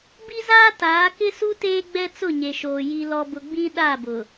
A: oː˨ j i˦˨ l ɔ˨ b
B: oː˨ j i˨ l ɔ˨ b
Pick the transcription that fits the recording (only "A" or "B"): B